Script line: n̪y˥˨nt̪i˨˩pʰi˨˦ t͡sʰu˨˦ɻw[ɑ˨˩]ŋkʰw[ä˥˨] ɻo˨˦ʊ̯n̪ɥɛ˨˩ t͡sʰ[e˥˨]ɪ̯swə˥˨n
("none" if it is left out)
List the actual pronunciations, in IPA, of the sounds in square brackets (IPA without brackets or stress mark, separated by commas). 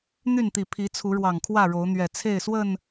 ɑ˨˩, ä˥˨, e˥˨